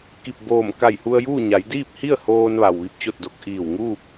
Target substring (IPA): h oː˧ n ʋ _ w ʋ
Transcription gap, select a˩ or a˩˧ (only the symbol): a˩